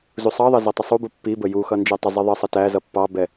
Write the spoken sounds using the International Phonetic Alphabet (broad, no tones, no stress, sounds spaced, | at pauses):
z u sˤ ɑ ðˤ ʌ z ʌ tˤ ə sˤ u b u pː i b ə j u x ʌ n d͡ʒ ɛ tˤ ə zˤ i ðˤ ə sˤ ə t æ z ʌ pː ɑ b ɛ